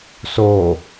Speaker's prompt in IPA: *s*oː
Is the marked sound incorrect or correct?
correct